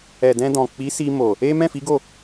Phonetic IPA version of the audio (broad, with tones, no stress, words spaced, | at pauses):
ɛ˨dɛ̃˧dɔ̃˨ k͡pi˨˦si˧mo˨ | e˦ mɛ̃˦˨fi˨˦ɡo˦˨